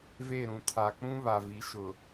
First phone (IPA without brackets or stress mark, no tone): v